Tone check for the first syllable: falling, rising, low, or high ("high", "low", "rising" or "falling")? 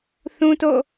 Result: high